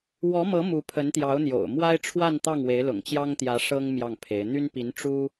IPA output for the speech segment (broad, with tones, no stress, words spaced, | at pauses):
wɔ˧˥mɤ˧˥ mu˧˥pʰə˧˥nt̪jɑ˧˥ʊ̯n̪jo̰˨˩ʊ̯ mwa˥ɪ̯ʈ͡ʂʰwa˥˧n t̪ɑ˥˩ŋwe˧˥ɪ̯ lʊ̰˨˩ŋt͡ɕjɑ˥ŋt̪jä˧˥ ʂɤ˥ŋ mjɑ˥˩ŋpʰe˧˥ɪ̯ n̪y˥n pi˧˥n ʈ͡ʂu˥